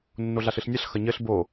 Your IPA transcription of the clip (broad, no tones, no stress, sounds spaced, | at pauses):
nː o ɮ a ɬ ɨ ɬ nʲ ɐ ɬ x ɐ ɲ ɘ ɬ b o